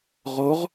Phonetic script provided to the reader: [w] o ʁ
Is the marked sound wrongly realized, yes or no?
yes